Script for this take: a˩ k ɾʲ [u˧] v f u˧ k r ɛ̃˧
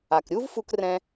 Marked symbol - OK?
no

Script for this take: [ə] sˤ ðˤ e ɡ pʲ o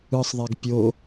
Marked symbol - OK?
no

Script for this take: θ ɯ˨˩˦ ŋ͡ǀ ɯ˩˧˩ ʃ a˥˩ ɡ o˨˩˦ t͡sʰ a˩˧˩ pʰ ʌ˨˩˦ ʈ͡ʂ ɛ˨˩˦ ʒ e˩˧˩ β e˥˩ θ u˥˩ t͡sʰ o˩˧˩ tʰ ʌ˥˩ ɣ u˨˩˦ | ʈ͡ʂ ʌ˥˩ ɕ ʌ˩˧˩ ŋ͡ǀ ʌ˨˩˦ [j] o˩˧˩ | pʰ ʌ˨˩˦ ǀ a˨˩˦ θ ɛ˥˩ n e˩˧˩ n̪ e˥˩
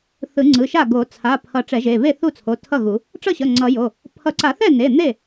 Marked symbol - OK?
yes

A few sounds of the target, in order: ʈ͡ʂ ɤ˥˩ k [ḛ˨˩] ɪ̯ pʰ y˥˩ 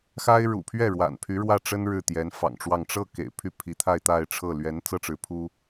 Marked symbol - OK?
yes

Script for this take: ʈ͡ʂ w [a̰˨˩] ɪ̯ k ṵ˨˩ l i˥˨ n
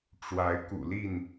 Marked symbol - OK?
no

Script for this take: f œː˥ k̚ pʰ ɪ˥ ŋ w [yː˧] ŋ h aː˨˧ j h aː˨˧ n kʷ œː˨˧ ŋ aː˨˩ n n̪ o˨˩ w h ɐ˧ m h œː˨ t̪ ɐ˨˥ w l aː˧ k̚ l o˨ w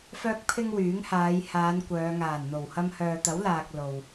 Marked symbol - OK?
no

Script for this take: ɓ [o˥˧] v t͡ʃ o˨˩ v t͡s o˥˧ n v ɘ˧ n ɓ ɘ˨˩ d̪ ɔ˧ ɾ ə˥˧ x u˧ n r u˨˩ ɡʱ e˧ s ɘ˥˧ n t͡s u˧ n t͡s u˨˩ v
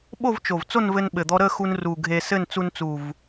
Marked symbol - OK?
yes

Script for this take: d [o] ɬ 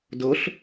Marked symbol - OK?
yes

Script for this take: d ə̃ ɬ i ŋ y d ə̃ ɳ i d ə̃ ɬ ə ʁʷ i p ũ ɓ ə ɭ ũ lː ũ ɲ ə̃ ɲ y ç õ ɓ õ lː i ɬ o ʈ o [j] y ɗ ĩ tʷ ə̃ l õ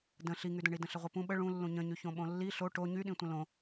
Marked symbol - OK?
no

